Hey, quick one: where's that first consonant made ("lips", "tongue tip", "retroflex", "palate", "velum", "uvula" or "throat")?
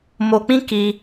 lips